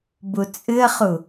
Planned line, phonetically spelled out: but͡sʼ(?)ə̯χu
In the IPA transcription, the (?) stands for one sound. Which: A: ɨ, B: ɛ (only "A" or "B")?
A